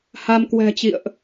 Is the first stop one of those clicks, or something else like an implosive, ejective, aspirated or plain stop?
plain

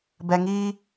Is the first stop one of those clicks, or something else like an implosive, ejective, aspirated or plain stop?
plain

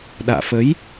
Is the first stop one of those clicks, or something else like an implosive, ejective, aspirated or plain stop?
implosive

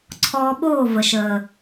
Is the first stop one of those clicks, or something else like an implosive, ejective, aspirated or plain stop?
click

